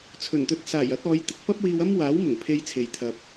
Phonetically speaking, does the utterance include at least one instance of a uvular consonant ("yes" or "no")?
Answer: no